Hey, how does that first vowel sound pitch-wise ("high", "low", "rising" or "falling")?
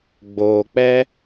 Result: low